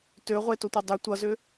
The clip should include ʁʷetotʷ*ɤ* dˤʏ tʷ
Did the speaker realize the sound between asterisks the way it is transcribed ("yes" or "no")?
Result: yes